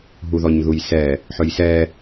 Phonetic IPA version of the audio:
ɦuðɔɲðujsɛ | ħɵjsɛ

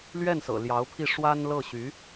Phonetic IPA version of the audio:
lɥɛ˥˩nsɤ̰˨˩ ljɑ˧˥ʊ̯pʰi˥˩ ʂwa˥nlɤ˥˩ɕy˧˥

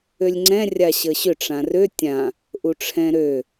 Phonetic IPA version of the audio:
ølʲŋ͡ǀɛ̃ rʲaɕəɕʏ ʈ͡ʂãrø tʲã | ʔuʈ͡ʂʰɛ̃ɾø

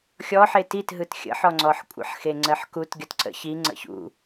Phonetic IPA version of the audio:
xʲɔħe titɦɯt xʲə̰ħɔŋ͡ǀɔħ kʷʼə̰ħxeŋ͡ǀɜħkut ɡʲɔtǀə̰ çi ŋ͡ǀə̰çṵ

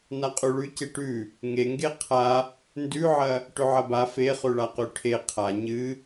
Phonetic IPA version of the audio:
naqʼʉɭʉ ceʈʉ | ŋeŋɡe qʰa | ndʉʕɐ | ʈɵʕɐba fe χʉɭaqʉʈʰe qʰa ɲɨ

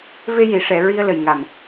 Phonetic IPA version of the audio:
ve˧ji˨˩˨ʂɛ˨˩˨ ɹi˧ə̯lə˨˩jŋa˨˩m

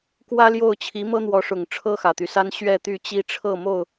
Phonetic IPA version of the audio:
kwä˦ljo˥˨ʊ̯ t͡ɕʰi˨˦mɤ˦n̪wɔ˨˦ʂʊ˨˩ŋ ʈ͡ʂʰɤ˦xä˨˩t̪y˦sa˦n ɕɥɛ˥˨t̪y˥˨t͡ɕi˦ ʈ͡ʂʰɤ˥˨mo˥˨ʊ̯

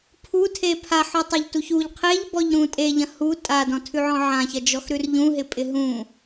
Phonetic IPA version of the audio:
pʰutʰe pʰaħɔtˤeʎtuç uʎ qʰeʎbɔʎɾũ tʼeʎɐ̃ hu tʼadɔ̃tʰʉʕɔ̃ ʕãçɐd͡ʒɔxɾʉr ʎũɦɪpʼɪ ɦũ

